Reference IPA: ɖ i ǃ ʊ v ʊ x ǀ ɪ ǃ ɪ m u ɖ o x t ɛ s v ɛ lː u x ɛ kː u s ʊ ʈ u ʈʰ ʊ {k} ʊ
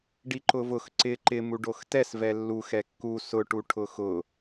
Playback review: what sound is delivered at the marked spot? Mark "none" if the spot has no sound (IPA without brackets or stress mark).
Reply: x